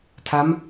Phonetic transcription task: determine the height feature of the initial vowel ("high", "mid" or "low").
low